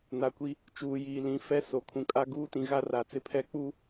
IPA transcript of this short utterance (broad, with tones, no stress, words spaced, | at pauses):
na˨kʷi˦ | t͡ʃuː˨jiː˨lĩ˨˦ fɛ˦so˨ kʰũ˨kʼa˦ɡuː˦ tĩ˨ɣa˦ ra˨ t͡sɪ˦pʰɛ˦k͡puː˦